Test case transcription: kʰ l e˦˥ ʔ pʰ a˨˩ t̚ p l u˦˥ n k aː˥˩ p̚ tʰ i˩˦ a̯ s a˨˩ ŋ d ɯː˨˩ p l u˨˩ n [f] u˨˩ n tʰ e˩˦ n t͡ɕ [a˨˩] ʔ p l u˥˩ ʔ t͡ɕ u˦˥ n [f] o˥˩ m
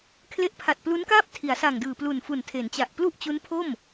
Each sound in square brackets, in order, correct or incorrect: correct, correct, incorrect

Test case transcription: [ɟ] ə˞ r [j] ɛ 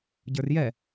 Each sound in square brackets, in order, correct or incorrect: correct, correct

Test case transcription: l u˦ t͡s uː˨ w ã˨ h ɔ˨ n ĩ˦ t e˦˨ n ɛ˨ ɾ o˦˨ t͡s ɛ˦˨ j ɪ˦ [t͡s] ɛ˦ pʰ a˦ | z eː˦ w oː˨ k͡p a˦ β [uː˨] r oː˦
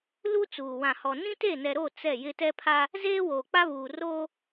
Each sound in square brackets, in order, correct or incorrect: incorrect, correct

